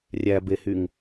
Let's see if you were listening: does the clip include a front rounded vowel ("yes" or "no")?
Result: yes